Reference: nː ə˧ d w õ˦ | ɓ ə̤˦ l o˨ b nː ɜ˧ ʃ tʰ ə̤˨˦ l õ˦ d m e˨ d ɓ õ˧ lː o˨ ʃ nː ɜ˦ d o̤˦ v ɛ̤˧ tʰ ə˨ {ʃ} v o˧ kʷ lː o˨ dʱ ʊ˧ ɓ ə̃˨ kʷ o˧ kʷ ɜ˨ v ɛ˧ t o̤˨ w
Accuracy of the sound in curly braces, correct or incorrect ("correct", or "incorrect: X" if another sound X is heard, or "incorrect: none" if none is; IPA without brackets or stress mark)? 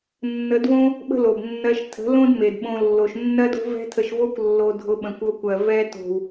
correct